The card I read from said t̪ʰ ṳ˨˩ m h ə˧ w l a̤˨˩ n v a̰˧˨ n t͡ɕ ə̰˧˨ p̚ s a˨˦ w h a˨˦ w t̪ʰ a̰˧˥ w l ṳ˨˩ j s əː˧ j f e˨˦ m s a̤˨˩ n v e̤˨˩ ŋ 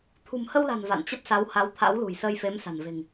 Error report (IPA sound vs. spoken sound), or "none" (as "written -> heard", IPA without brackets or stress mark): ə̰˧˨ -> ə˦˥